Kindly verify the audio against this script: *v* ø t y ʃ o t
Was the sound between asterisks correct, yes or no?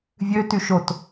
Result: no